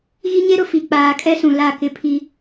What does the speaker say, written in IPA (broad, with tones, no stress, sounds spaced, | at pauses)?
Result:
ɣ i˦ ɲ e˦ ɾ ʊ˨ f i˨ k͡p aː˨ kʼ ɛ˦ s ũ˨ l a˦˨ k ɪ˦ pʰ i˦